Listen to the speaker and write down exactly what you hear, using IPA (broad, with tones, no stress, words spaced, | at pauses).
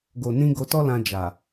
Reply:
ɡo˨nĩ˧ ɡo˧tɔ˦lã˧ d͡ʒa˨